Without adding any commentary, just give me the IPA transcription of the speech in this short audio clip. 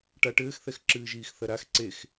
ʈ a ʈ ɘː x θ ɛ x ǁ ɨː ʒ iː x θ ɐ ɾ a x ǀ e x

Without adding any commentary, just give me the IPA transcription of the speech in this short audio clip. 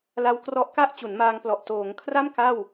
l a˧ w k r ɔ˦˥ ʔ k a˥˩ ʔ t͡ɕ u˩˦ n m aː˧ ŋ p l ɔ˨˩ ʔ t oː˩˦ ŋ kʰ r a˥˩ m k a˥˩ w

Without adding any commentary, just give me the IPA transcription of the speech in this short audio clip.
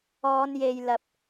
ɔː˨˧ n j e˨ j l ɐ˨ p̚

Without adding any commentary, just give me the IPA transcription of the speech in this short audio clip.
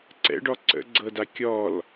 ǀ ɛ̰ ɖ ɔ ǀ ə̰ ɡ͡ǀ ɤ d a kʲ ɔ l

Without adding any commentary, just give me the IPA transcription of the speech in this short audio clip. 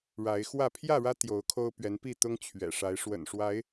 ɻ a˨˦ ɪ̯ x w ä˥˨ pʰ j ä˥˨ ɻ ä˦ t̪ j o˨˦ ʊ̯ kʰ o˦ ʊ̯ p ɥ ɛ˨˦ n p i˥˨ t̪ ʊ˦ ŋ t͡ɕʰ ɥ ɛ̰˨˩ ʂ a˨˦ ɪ̯ ʂ w ə̰˨˩ n ʂ w a˨˦ ɪ̯

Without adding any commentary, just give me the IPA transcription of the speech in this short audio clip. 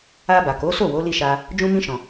a˧ b a˨ k o˨˦ s o˦˨ w o˨˦ l i˦˨ ʃ a˧ | d͡ʒ ũ˧ m ĩ˧ ʃ ɔ̃˨

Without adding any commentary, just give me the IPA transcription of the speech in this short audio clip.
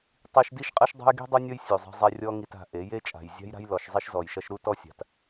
tˤ i˦ ʃ d i˦ ʃ qʼ ɐ˦ ʃ dˤ a̤˦ j ɡ i̤˦ dˤ u˦ nʲ ɔ˦ j sʲ u˨ zˤ i̤˧ zˤ ɛ˧ rʲ ɔ˦ ŋ i˧ t a̤˧ ʔ e˨˦ j e˦ t͡ʃʼ a̤˨ j zʲ a̤˦ j ɾ a̤˦ j l ɔ˧ ʃ zˤ i˦ ʃ z ɔ˨ j ʃ ɐ˦ ʃ ɾ u˦ t ɔ˦ sʲ a̤˨ t

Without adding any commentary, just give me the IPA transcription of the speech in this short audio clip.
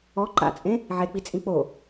ɔ ǃ a̰ t͡sʼ ẽ | ʕ e k͡p i t͡sʼ ĩ k͡p o

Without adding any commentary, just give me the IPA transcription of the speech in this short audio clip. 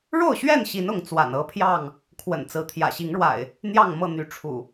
ɻ o˥˨ ʊ̯ ɕ ɥ ɛ˥˨ n ɕ i˨˦ n ʊ˨˦ ŋ t͡s w a̰˨˩ n ɤ˦ pʰ j ɑ˥˨ ŋ | kʰ w ə̰˨˩ n t͡s ɹ̩˨˦ t̪ʰ j ä̰˨˩ ɕ i˨˦ ŋ ɻ w a̰˨˩ ɪ̯ | n̪ j ɑ˥˨ ŋ m ɤ˥˨ n̪ y˨˦ ʈ͡ʂʰ ṵ˨˩

